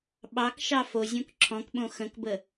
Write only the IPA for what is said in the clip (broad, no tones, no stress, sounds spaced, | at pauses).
ɓ ɑ k ʃ ɑ f o zʲ õ k ǁʰ ɔ̃ k ɓ õ x ə̃ k b ə